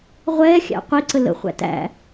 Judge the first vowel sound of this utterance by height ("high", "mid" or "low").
mid